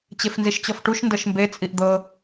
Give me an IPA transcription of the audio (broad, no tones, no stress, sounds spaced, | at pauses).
t͡ɕ e f n z i ʃ t͡ɕ ɔ f ʈ u ʃ n d ɤ ʃ m b e t͡sʼ i ʔ d̪ ɤ